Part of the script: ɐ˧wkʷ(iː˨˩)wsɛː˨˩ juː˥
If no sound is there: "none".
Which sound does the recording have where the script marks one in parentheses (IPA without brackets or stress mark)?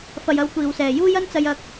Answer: iː˨˩